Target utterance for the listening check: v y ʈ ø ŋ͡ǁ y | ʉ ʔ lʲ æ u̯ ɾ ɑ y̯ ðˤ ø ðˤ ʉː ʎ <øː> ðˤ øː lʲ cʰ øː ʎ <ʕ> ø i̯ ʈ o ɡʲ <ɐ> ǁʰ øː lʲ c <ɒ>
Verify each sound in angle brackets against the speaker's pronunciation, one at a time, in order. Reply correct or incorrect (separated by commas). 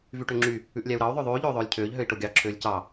correct, incorrect, incorrect, incorrect